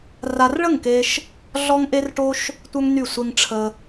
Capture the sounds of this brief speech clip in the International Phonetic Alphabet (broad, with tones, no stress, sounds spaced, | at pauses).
r a˦ r ɭ ə˦˨ ŋ k e˧ ʃ | ɮ ɔ˦ ŋ ʔ e˦ r ʈ o˦ ʃ | tʷ œ˦ ŋ n y˦˨ sʷ e˦ ŋ ʈ͡ʂʰ ə˧